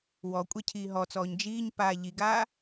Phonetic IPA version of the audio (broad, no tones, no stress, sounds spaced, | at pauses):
w ɔ kʷʼ ɛ cʰ iː ɦ ɔ t͡s ɔː ɲ d͡ʒ iː ɲ p aː ʎ i ɡ aː